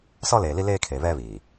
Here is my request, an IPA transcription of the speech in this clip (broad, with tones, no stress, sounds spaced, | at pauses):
s ɔ˦ l eː˨ l i˦ l eː˦ kʰ e˨ β ɛ˦ β iː˨